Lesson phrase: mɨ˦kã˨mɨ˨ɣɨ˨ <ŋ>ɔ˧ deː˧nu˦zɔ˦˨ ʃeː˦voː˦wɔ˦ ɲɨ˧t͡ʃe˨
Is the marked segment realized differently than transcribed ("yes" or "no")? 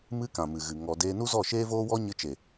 no